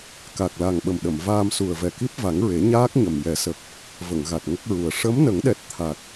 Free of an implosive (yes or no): no